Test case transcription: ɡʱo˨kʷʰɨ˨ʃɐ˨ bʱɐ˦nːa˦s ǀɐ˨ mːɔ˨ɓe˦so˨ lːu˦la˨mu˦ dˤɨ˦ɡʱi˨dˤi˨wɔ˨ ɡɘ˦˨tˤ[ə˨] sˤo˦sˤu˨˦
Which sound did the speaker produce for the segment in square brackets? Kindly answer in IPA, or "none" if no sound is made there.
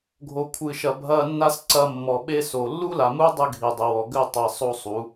ɛ˨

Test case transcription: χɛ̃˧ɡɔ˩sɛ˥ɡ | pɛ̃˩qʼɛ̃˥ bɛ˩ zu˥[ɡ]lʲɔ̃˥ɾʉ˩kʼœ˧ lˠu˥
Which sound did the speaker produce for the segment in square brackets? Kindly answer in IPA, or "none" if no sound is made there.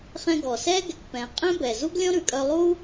ɡ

